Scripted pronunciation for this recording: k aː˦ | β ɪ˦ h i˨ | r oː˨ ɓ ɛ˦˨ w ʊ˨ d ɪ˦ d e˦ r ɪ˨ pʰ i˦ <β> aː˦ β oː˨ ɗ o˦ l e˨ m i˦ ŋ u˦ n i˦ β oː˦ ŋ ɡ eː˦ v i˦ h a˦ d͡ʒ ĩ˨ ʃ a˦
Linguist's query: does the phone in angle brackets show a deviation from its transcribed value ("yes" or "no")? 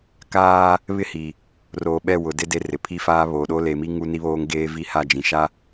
yes